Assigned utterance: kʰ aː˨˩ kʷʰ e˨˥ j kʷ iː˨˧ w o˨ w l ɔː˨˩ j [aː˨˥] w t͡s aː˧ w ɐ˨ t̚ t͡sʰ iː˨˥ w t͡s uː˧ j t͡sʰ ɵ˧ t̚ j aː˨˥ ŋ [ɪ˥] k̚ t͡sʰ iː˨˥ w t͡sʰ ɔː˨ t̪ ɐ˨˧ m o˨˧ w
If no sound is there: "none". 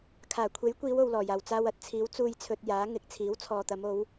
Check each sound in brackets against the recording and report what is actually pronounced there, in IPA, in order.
aː˨˩, ɪ˧

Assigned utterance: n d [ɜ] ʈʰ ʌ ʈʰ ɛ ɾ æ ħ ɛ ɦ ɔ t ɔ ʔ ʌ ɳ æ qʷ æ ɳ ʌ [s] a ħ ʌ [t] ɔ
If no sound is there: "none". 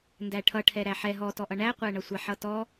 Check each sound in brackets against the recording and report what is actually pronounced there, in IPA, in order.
æ, sʷ, t

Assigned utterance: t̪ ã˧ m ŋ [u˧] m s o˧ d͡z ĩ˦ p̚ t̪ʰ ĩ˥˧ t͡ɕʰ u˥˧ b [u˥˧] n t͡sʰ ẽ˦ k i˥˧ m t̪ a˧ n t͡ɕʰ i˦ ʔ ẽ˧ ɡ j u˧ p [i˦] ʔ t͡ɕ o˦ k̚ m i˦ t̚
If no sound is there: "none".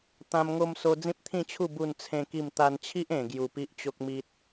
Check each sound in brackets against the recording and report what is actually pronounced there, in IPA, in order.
o˧, u˥˧, i˦

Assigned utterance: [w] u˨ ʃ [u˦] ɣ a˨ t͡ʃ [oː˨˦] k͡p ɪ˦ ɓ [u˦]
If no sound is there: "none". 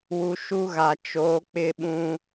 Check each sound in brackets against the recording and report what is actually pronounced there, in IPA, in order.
w, u˦, oː˨˦, ũ˦

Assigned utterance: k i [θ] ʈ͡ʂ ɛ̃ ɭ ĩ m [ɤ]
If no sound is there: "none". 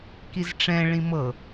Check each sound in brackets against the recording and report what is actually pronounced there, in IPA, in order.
z, ɤ

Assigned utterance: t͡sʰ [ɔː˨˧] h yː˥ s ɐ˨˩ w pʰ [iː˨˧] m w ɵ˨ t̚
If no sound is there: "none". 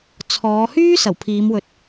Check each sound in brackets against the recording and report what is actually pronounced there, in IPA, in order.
ɔː˨˧, iː˨˧

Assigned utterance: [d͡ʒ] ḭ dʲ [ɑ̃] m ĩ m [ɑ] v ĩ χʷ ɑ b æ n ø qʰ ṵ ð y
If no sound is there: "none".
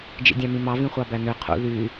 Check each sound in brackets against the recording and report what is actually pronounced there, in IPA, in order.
d͡ʒ, ɑ̃, ɑ

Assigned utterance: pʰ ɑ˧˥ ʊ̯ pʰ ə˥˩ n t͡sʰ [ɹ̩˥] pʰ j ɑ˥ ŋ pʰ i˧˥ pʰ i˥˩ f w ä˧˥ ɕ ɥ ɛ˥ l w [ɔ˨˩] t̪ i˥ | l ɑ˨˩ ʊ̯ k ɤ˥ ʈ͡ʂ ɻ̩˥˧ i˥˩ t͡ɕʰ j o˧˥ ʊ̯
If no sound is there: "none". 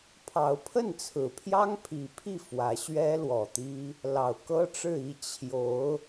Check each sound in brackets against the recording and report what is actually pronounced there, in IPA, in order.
ɹ̩˨˩, ɔ˨˩

